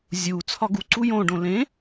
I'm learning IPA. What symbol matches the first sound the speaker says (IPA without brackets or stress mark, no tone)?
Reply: zʲ